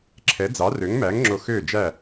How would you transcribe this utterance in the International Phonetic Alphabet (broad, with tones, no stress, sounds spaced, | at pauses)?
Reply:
ǁʰ ɛ˨˥ d͡z ɑ˨˥ r ø˨˥ ŋ m æ˨˥ ŋ ŋ͡ǁ o˧ x øː˥˨ d͡ʒ æ˥˨